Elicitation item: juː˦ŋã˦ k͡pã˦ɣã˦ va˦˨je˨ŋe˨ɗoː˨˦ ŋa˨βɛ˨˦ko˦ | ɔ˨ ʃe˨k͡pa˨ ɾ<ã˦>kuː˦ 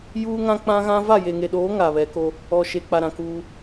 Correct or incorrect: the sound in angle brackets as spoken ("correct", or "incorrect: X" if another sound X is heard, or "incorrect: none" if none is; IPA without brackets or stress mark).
incorrect: ã˨